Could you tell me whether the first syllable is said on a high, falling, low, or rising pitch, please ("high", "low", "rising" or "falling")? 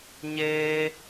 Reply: high